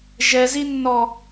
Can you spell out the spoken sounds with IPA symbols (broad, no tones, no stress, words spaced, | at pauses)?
ʒɛzinːɔ